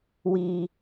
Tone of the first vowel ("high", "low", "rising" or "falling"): low